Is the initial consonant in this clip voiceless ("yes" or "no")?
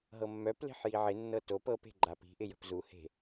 no